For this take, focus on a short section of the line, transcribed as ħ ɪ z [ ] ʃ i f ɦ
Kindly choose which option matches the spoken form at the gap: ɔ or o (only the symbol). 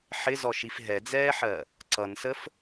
ɔ